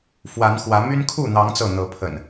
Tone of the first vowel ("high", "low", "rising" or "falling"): rising